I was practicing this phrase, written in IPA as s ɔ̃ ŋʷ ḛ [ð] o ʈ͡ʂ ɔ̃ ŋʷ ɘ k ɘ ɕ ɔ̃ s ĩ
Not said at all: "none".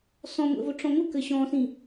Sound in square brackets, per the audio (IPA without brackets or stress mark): v